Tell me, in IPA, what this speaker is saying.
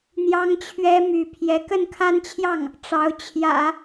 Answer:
n̪jɑ˥ŋt͡ɕʰɥɛ˥my˧˥ pʰjɛ˧˥kə˥˧nkʰa˥˧nt͡ɕʰjɑ˥˩ŋ | ʈ͡ʂɑ˧˥ʊ̯t͡ɕʰjä̰˨˩˦

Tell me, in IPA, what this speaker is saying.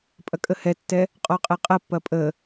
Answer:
pʼɐkʼəhɛtːɛ | qʼɔqʼɛqʼɐpːɐ pʼə

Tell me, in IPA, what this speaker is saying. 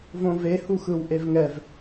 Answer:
võve huxɯwʔevŋɛv

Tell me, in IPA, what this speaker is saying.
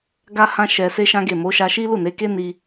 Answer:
ɡa˦hã˦ʃɛ˧ se˦ʃã˦ɡe˦˨ mo˨˦ ʃa˧ʃi˦lu˦˨ne˨˦ ke˦ ni˧

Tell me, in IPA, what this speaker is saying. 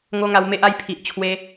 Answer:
ŋo˦ŋa˧wme˦ʔ a˧j pʰi˨ʔ t͡ɕʰwe˧

